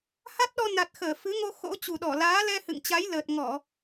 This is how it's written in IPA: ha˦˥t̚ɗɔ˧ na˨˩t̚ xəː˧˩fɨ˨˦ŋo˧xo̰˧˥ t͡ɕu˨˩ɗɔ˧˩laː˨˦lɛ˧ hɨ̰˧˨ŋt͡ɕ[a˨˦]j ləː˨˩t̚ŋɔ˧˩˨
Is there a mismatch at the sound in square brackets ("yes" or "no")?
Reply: no